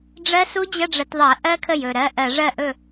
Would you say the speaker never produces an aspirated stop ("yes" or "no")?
no